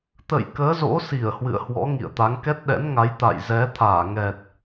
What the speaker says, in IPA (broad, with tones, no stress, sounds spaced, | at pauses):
t̪ ə̰˧˨ j k əː˨˦ z o̰˧˥ s i˧˩ ə̯ h w ɨ̰˧˨ ə̯ h w ɔ̰˧˥ ŋ ḭ˧˨ ə̯ t̪ a˨˦ ŋ k ɛ˦˥ t̚ ɗ ɛ̰˧˥ n ŋ a˨˦ j t̪ a̰˧˨ j z ɛ˨˦ t̪ʰ aː˧˩ ŋ ɛ˨˩ t̚